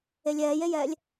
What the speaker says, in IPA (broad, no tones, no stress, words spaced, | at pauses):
elʲɛːjejɛːlʲ